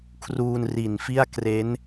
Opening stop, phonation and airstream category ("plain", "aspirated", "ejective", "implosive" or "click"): aspirated